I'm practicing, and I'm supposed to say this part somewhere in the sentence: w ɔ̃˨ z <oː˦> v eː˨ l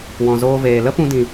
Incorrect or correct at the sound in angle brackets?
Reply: incorrect: oː˧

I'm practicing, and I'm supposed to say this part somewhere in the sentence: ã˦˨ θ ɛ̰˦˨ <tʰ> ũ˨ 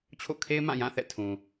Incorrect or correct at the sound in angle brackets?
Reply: correct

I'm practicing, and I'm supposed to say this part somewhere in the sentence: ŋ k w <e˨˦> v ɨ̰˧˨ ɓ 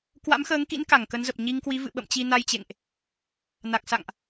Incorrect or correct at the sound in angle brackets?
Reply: incorrect: i˨˦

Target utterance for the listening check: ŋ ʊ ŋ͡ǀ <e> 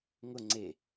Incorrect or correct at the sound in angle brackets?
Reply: correct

